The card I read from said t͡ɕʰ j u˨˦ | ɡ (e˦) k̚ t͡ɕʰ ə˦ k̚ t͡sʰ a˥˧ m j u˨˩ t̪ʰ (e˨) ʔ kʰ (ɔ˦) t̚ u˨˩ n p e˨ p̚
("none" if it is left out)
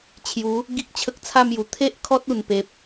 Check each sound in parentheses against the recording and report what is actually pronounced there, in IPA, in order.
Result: i˦, e˦, ɔ˦

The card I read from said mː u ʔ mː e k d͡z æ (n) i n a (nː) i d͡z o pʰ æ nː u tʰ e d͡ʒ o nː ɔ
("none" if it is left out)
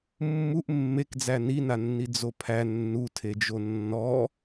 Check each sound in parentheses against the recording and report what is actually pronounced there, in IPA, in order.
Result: n, nː

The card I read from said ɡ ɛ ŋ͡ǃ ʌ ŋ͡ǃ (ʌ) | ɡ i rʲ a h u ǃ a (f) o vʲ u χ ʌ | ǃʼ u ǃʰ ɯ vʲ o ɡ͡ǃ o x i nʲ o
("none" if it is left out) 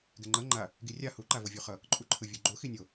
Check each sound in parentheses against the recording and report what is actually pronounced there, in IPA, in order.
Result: a, v

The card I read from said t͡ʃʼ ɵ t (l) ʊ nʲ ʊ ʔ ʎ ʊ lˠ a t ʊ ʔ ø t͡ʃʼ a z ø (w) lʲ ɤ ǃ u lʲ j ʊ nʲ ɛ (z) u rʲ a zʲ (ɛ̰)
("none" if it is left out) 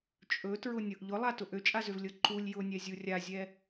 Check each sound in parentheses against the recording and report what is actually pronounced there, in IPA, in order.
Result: ɹ, v, zʲ, ɛ

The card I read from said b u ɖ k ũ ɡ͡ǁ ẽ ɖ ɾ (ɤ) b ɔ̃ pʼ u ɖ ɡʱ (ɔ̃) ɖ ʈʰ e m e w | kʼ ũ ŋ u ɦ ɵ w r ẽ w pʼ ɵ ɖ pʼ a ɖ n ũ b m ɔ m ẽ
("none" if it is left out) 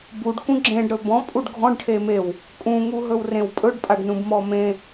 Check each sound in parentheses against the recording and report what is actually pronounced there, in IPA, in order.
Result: ɵ, ɔ̃

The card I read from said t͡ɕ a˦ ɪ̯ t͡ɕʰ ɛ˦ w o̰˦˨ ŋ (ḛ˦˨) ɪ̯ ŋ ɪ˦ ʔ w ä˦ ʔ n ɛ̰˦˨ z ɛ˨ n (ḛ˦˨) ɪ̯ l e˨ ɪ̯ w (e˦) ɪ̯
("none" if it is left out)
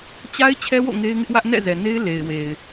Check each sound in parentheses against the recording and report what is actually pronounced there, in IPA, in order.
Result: e˦, e˦, e˨

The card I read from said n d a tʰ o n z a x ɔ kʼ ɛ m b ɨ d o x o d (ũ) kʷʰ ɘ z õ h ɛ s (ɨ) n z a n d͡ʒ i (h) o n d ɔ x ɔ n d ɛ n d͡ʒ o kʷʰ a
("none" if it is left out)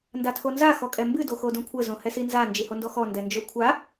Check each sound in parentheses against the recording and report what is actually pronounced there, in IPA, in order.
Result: õ, i, h

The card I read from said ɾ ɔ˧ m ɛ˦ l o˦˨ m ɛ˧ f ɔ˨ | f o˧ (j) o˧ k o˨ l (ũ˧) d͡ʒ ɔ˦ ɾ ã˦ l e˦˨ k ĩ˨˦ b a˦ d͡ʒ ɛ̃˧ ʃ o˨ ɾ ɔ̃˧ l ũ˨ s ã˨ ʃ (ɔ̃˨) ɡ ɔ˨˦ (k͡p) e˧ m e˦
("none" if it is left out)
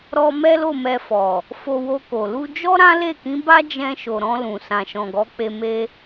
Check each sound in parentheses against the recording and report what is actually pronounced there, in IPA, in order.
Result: w, u˧, ɔ̃˨, k͡p

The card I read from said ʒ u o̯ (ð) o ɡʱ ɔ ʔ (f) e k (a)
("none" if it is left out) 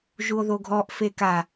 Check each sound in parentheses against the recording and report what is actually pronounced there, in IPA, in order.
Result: ð, f, a

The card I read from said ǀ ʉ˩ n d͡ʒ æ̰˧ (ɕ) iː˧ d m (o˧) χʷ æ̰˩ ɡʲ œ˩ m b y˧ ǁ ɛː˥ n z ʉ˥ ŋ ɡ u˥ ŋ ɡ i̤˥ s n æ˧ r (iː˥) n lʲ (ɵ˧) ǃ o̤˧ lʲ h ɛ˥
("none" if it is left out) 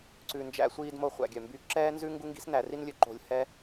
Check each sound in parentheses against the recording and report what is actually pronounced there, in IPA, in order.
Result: sʷ, o˧, i˥, ɵ˧

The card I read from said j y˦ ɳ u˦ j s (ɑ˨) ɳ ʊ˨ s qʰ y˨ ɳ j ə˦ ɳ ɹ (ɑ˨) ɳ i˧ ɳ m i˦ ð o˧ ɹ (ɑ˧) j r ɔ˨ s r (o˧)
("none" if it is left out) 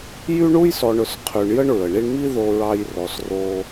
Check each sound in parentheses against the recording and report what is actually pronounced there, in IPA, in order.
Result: ɔ˨, ə˨, ɑ˧, o˧

